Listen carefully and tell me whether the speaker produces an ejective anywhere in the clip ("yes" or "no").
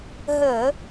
no